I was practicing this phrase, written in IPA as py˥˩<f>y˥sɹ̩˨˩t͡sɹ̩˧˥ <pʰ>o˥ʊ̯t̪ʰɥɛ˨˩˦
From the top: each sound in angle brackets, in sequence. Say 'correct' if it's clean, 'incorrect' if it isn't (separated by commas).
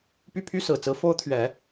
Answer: incorrect, incorrect